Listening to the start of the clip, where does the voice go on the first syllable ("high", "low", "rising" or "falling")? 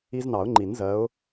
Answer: high